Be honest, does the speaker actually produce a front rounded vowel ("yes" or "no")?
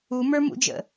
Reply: no